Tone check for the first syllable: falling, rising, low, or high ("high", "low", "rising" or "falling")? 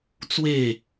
falling